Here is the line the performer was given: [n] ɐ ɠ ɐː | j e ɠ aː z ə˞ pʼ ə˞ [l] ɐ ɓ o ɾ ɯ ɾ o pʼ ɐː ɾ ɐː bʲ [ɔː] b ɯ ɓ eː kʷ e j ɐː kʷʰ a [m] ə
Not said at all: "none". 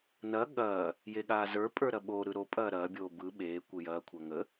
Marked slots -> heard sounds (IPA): n, ɾ, oː, ŋ

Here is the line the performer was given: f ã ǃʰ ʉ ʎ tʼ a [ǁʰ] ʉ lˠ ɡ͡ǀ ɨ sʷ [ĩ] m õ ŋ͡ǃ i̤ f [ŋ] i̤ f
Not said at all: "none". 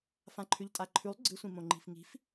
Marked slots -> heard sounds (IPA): ǃʰ, ĩ, ŋ

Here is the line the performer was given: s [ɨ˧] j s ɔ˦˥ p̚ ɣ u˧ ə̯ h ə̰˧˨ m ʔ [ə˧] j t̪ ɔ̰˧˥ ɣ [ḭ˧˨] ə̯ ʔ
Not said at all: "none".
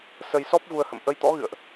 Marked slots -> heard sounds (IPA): ə˧, ə˧, ɨ̰˧˨

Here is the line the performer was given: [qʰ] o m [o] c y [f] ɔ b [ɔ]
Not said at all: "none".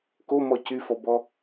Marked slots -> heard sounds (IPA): k, ɔ, f, ɔ

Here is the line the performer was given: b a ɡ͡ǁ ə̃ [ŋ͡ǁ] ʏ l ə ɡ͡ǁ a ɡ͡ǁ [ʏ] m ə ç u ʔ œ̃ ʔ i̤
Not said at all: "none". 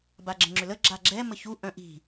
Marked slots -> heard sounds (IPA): ŋ͡ǁ, ɛ

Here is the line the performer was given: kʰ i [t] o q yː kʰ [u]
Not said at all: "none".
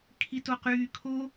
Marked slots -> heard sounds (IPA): t, o

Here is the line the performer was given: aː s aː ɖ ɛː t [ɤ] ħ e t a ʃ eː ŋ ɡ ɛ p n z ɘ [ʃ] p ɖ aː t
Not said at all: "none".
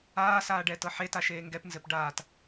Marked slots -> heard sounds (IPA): ɤ, none

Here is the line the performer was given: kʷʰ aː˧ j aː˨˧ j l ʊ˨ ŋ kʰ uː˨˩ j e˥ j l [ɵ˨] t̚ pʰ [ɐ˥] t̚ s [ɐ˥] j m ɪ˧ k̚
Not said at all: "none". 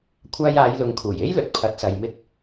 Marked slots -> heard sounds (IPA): ɵ˨, ɐ˨˥, ɐ˨

